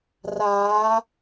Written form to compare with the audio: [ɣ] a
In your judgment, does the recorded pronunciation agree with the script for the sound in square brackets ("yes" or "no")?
no